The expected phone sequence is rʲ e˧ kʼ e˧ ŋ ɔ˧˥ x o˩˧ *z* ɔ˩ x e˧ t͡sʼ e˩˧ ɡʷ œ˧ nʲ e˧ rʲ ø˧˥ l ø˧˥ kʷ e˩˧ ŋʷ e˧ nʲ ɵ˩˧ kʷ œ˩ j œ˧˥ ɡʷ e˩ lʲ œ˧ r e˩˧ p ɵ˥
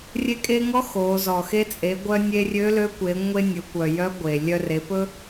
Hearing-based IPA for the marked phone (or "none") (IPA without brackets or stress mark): z